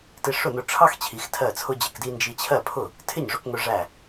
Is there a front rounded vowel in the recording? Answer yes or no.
no